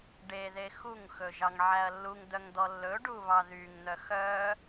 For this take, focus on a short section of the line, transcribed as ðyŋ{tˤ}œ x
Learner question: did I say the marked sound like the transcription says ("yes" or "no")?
no